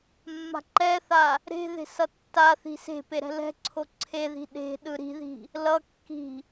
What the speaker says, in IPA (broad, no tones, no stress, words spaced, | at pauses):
mːa̤ǃɛθa | ɾe̤ ðe̤sʌtːaθi̤ se̤pe ɾɛ̤lɛ̤ǀʰo ǀʰeði̤ ɗe̤ ɗɯɾi̤ði̤ | lʌkːi̤